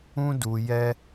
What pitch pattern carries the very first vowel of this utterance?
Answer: high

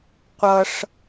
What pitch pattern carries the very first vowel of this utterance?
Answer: high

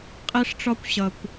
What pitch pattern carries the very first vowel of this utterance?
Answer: high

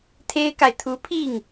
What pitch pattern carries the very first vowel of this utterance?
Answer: high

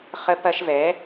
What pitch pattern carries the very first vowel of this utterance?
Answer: high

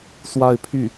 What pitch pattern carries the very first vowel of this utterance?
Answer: falling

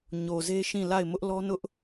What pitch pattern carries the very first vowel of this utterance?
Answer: low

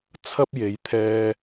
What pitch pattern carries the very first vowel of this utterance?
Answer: high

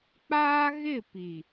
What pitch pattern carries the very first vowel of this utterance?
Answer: high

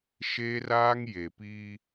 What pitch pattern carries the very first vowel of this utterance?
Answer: high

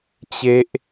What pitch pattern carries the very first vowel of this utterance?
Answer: high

